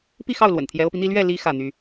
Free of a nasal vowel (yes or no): yes